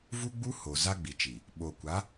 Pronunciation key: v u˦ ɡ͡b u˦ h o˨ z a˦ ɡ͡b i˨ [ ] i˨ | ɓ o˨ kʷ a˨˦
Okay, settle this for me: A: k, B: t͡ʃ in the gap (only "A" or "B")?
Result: B